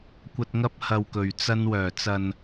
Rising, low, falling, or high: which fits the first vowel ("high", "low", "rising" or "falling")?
low